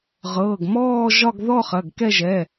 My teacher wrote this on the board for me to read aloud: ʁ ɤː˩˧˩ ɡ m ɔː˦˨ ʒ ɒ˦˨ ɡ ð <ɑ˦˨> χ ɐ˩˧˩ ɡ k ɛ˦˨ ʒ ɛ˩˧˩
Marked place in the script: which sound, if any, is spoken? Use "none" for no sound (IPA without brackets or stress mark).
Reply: ɔ˦˨